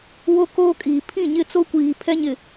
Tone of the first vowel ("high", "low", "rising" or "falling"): high